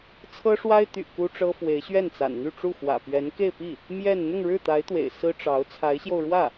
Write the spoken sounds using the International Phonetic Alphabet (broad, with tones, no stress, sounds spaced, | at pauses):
t͡sʰ ɤ˥ ʂ w a˥ ɪ̯ t̪ y̰˨˩ k u˥ ʈ͡ʂ ɤ˥ f w e˧˥ ɪ̯ ɕ ɥ ɛ˥˩ n t͡s a̰˨˩ n n̪ y˥˧ ʈ͡ʂ u˥˩ x w ä̰˨˩ p ɥ ɛ˧˥ n k e˥˧ ɪ̯ p i˥˩ | m j ɛ˥˧ n n̪ ʊ˥˧ ŋ ɻ ɻ̩˥˩ t̪ a˧˥ ɪ̯ t̪ w ḛ˨˩ ɪ̯ s ɹ̩˥ ʈ͡ʂ ɑ˧˥ ʊ̯ t͡sʰ a˧˥ ɪ̯ ɕ j o˧ ʊ̯ ɻ w ä˥˩